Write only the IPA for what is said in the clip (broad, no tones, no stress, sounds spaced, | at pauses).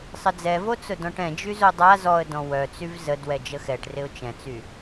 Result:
sˤ ə d͡z ɛ v o t͡s ʊ d ɔ̃ ʈ ɛ̃ d͡ʒ y z o dˤ a z ɔ ə̯ d ɔ̃ w œ t͡s y v z ə d w ɛ d͡ʒ ə x ɛ ʈ r ɪ ʊ̯ t͡ʃ ɛ̃ t͡s y